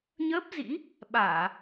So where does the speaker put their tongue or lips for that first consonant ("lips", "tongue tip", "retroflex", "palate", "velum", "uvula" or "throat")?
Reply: palate